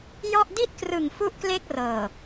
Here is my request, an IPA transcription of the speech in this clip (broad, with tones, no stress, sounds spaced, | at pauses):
j ɔ˥˩ ʔ d i˥˩ t̚ k r ɯ˨˩ ŋ f u˥˩ ʔ k l e˥˩ k̚ r ɤː˨˩